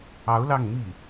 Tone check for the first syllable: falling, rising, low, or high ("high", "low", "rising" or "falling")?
rising